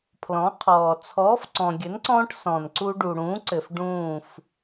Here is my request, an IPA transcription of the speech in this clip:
pʰ l ɔ̃˨˥ qʰ ɔː˨ t͡sʰ ɔː˨˥ f ǀ ɔ̃˨ ɡʲ ə˨˥ n ǀ ɔ̃ː˦ ʈ s ɔ̃˨ n ǀ u˦ ɖ u˨ ɽ ũː˨˥ ǀ ɘ˨ f ɖ ũː˦˨ f

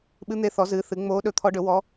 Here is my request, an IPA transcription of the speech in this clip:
ɓ ɨ˧˥ n̪ e˧˥ θ ɔ˩˥ z ɨː˩˥ θ ɨ˩˥ ŋ͡m oː˧˥ ɗ ɵ˧˥ t̪ʰ ɔ˧˥ ɖ ɵ˩˥ w ɔ˧˥

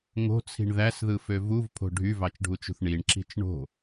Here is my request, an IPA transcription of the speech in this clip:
ŋ o̤ t͡sʰ i̤ ɳ ð æ s ð ɯ f ø v u v pʰ o̤ ɖʱ y v ɑ t͡ʃ ɖʱ u t͡ʃ ṳ θ ɳ i ɳ ǁ i̤ t͡ʃ ɳ o̤

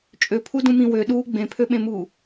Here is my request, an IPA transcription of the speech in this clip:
t͡ʃʼ ø pʰ u d ũ m ĩ w ø ɗ uː ɡ͡b ẽ pʰ ø ɓ ẽ m uː

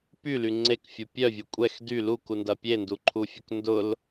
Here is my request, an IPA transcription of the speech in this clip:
p y l y ŋ͡ǀ e k fʲ u pʲ œ vʲ e kʷʼ ɛ x d y l u k u n d ɐ pʲ e n d u ǃʰ u fʲ ʊ k n d ʊ l

